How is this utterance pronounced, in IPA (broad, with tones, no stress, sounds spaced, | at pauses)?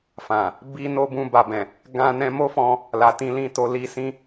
f ã˨ | b i˦ n o˦ b ũ˧ b a˨ b ɛ̃˨ | ɡ ã˧ n ɛ̃˧ m o˦ f ɔ̃˧ | l a˨ t ĩ˧ l ĩ˧ t o˧ l i˧ s ĩ˦